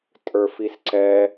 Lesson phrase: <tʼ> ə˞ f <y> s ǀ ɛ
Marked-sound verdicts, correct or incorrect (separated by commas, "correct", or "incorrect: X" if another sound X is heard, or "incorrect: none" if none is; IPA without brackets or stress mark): correct, incorrect: i